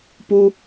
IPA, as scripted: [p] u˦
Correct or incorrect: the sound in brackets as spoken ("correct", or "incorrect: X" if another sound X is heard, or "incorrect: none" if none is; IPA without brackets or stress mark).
correct